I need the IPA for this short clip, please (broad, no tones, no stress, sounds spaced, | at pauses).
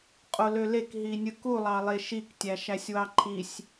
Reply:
qʼ o l ø l e k ɦ i nʲ ɯ k u lˠ ɑ lˠ e ʃ i k tʲ æ ʃ æ sʲ w ɑ ǃʰ i sʲ